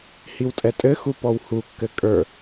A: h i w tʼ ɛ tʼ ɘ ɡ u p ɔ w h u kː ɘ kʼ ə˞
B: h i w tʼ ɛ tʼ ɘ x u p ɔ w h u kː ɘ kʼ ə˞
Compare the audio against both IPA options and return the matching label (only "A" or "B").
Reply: B